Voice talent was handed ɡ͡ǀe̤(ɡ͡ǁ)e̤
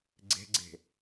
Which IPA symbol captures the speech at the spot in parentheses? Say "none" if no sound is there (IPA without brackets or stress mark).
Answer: ɡ͡ǀ